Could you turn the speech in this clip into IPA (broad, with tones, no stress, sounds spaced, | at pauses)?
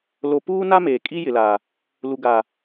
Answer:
l o˨ p uː˦ n a˦ m eː˨ kʼ i˦ j ɪ˨ l a˨ | l u˨ ɡ a˨